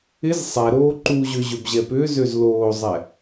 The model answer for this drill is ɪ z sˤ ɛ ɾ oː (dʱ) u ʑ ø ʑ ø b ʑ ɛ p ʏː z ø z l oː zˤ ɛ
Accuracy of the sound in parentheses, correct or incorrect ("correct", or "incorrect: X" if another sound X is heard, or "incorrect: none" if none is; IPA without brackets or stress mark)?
incorrect: ǃ